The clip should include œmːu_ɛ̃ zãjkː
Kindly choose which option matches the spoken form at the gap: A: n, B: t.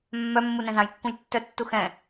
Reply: A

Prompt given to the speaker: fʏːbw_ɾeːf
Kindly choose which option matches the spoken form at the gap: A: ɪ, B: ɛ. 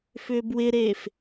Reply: A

